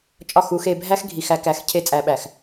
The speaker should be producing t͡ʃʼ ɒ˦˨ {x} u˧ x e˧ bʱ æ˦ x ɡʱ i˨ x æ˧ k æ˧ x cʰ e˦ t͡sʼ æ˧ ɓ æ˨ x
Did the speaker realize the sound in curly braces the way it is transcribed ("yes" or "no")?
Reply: yes